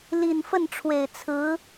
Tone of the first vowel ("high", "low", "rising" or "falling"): low